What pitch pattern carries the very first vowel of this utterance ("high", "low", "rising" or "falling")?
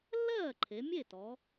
falling